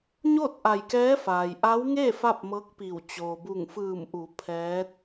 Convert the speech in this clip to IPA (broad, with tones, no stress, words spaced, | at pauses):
ɲoː˥˨t̚ʔa˧˩jkɛː˧˥faː˩j ʔa˧˥wŋe˥˨ fa˥˨p̚mɤː˧˥k̚pi˧˩w t͡ɕoː˩bu˧˩ŋfɯː˧˩mʔu˩˧ pʰɛː˧˥t̚